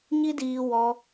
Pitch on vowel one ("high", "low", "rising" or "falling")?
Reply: high